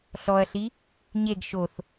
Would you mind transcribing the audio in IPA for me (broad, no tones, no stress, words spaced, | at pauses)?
ɬɔɐ̯ɬi | ɲeɡ ʃoθ